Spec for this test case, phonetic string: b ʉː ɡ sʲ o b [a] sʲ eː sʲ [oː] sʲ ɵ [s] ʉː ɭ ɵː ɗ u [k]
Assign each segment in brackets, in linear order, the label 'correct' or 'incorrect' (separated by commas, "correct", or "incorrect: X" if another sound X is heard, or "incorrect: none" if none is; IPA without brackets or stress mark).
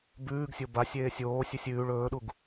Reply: correct, correct, incorrect: sʲ, incorrect: ɡ